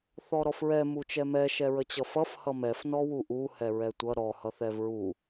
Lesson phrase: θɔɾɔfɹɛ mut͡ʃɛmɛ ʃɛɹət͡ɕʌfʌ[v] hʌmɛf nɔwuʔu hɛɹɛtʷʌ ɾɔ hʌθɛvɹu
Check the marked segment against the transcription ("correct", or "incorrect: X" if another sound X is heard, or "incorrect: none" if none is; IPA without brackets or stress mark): incorrect: f